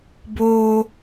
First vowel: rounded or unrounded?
rounded